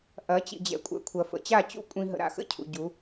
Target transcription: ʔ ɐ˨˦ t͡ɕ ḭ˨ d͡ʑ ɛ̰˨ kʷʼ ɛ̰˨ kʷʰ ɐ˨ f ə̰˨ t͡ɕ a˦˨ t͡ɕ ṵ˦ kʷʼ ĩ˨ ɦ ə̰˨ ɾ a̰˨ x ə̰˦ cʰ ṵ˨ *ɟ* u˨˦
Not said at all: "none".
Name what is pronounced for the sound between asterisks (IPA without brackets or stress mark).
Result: ɟ